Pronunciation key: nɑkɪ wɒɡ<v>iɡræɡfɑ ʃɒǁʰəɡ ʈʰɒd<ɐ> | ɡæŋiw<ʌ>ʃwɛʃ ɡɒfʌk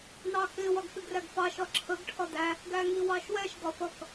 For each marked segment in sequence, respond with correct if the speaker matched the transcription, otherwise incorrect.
incorrect, incorrect, incorrect

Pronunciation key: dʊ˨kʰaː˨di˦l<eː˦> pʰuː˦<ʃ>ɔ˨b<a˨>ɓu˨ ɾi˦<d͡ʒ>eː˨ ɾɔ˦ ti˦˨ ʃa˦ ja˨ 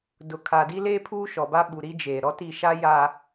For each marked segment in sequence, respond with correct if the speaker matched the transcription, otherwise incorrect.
correct, correct, incorrect, correct

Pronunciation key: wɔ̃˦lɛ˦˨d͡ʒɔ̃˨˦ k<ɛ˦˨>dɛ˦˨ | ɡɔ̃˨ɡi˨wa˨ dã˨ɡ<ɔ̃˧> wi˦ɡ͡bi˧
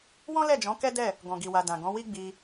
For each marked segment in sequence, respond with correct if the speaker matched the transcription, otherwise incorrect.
incorrect, incorrect

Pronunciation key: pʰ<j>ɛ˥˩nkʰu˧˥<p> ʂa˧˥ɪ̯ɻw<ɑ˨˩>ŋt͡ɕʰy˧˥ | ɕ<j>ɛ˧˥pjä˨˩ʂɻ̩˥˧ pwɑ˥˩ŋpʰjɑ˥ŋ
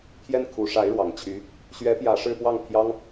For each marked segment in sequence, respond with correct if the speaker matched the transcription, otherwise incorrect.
correct, incorrect, correct, incorrect

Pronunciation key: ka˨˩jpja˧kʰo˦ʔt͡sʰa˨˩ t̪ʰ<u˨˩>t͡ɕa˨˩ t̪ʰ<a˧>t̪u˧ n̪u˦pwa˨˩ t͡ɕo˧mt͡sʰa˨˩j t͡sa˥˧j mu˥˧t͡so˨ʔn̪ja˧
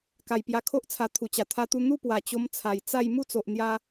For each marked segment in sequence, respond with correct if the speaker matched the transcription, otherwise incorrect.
correct, correct

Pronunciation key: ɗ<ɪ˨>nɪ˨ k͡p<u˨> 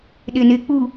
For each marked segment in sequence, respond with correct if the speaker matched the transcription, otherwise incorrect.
correct, correct

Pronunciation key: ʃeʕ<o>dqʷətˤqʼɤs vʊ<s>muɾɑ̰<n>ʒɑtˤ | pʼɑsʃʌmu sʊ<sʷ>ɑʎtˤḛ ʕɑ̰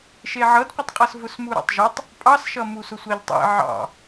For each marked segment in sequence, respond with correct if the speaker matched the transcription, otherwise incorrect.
incorrect, correct, incorrect, correct

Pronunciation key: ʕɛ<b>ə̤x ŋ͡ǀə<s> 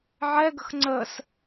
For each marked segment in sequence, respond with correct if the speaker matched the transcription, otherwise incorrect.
incorrect, correct

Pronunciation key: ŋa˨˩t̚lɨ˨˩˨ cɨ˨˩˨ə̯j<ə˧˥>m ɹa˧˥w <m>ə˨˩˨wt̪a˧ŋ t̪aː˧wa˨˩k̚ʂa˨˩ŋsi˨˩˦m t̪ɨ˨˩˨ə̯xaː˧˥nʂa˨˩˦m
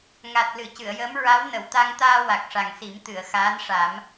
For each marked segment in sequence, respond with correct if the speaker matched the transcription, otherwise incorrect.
incorrect, incorrect

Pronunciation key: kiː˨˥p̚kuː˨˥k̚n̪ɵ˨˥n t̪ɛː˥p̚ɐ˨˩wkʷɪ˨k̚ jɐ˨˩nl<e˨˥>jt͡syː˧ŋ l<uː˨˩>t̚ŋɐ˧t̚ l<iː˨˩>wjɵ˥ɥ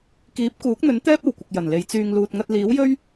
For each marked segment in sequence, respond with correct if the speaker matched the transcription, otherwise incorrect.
correct, incorrect, incorrect

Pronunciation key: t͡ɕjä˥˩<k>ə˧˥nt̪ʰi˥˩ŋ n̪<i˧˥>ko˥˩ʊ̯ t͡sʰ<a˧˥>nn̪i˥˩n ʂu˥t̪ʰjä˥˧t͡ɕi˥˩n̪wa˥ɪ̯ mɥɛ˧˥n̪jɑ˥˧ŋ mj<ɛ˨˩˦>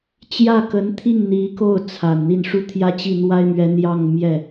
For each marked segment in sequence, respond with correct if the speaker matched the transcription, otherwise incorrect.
correct, correct, incorrect, incorrect

